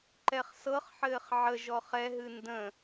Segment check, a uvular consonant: present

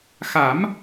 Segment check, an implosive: absent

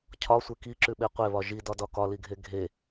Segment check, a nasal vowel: absent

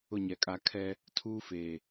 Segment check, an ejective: present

